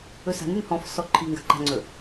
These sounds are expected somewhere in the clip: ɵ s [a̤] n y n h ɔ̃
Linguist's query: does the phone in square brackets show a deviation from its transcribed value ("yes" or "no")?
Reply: no